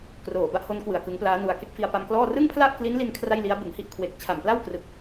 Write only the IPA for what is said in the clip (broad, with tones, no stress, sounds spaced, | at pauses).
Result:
k r oː˨˩ b a˥˩ ʔ h o˦˥ n k w ɯ˨˩ a̯ k ɯ˦˥ ŋ p l aː˦˥ n u˧ a̯ k e˥˩ k̚ f i˧ a̯ p a˧ m k l ɔː˥˩ r ɯ˥˩ ŋ pʰ l a˥˩ ʔ k l i˦˥ n l i˧ n kʰ r a˥˩ j l i˦˥ a̯ b ɯ˨˩ ŋ h i˥˩ ʔ kʰ w e˨˩ k̚ t͡ɕʰ a˨˩ m p l a˥˩ w k r ɯ˨˩ k̚